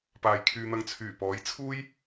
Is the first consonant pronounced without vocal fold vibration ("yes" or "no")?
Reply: yes